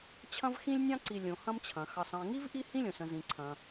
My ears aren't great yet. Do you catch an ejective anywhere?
no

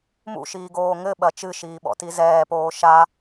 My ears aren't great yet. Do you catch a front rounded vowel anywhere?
no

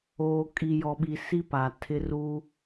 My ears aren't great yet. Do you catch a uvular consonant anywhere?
no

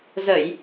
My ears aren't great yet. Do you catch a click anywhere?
no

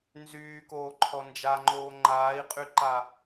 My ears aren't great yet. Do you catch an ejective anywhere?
yes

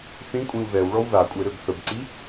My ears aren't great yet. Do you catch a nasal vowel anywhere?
yes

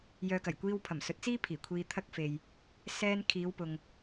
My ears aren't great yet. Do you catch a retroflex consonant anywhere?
no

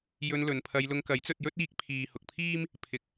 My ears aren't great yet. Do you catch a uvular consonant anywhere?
no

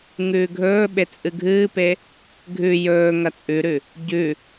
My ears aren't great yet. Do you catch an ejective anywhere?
yes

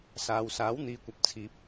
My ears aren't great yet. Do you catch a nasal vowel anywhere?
no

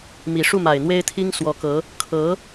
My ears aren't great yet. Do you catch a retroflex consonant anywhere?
yes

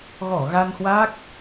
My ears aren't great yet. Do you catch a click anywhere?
no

